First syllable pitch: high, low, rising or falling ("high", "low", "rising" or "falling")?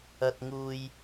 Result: high